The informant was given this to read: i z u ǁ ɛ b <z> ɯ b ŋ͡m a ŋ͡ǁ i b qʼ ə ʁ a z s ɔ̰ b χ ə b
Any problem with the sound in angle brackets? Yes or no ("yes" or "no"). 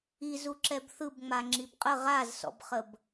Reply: yes